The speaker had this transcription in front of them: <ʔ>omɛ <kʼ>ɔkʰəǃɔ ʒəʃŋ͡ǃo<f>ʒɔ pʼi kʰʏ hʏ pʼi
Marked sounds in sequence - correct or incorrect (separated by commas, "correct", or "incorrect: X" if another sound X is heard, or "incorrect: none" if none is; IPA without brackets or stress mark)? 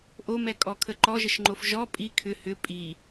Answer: correct, correct, correct